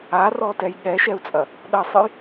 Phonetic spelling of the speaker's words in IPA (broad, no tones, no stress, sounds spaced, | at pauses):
a r ɔ t ɛ j ɠ ɛ ʃ ɛ u̯ t͡sʼ ɐ | ɗ ɐ sˤ ɨ j